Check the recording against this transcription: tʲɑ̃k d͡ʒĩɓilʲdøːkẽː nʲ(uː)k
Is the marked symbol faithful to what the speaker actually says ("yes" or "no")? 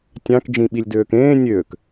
no